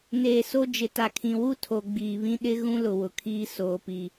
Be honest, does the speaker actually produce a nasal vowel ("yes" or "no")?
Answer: yes